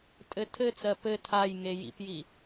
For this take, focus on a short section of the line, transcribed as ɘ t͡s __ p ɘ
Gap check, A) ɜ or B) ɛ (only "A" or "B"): A